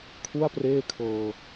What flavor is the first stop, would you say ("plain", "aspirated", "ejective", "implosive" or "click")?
aspirated